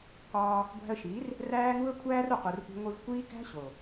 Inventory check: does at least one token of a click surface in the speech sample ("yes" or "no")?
no